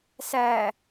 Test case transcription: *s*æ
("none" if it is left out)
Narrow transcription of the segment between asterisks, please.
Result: s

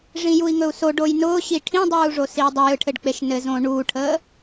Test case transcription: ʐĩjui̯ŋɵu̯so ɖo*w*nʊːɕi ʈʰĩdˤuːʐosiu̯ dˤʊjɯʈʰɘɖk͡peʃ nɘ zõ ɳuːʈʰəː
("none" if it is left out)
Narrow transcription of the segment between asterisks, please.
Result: j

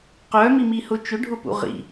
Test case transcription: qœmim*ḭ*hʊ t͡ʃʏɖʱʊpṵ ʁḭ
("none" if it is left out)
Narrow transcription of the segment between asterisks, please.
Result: i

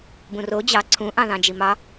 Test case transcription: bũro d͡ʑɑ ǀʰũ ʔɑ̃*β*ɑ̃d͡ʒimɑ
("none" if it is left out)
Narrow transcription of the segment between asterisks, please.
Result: ð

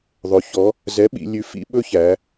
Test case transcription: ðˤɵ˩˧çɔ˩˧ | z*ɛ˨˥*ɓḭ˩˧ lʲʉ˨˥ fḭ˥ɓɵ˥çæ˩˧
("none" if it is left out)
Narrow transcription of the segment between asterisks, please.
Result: ɛ˨˥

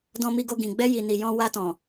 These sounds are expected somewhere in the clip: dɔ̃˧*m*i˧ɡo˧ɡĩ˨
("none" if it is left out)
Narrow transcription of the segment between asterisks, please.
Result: m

